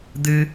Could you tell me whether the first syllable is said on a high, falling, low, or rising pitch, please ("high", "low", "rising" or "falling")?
high